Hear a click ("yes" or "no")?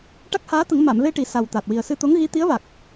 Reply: no